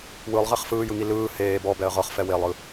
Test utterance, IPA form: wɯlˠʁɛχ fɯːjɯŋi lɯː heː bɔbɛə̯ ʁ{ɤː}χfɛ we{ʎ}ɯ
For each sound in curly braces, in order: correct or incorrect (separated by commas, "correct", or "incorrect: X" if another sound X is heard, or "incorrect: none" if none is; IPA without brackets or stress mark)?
incorrect: ɤ, incorrect: lˠ